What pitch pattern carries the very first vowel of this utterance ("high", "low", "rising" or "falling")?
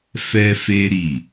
high